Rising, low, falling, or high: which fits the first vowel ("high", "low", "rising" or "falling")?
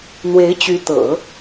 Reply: rising